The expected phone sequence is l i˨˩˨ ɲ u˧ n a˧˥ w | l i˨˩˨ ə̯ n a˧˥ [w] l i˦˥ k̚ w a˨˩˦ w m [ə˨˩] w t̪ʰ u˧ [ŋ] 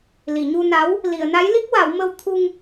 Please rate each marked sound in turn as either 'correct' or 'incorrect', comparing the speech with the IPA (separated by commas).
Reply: incorrect, incorrect, correct